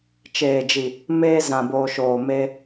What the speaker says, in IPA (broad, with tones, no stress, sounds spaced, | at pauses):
t͡ʃ eː˨ d͡ʒ i˨ | m eː˧ z ã˨ b oː˨ ʃ oː˨ m e˧